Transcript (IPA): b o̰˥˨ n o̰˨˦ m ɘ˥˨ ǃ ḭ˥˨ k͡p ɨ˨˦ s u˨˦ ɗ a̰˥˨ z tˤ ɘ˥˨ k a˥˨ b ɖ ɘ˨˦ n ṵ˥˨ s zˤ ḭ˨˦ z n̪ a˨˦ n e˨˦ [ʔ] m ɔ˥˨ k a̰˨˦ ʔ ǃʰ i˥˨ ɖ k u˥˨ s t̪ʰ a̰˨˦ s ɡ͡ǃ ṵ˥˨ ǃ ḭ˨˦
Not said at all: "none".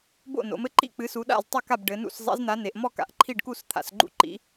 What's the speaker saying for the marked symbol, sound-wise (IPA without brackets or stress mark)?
ʔ